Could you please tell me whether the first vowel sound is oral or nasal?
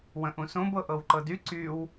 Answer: nasal